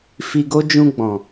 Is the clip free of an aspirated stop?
yes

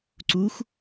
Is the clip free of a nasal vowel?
yes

